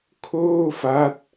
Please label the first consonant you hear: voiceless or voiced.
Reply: voiceless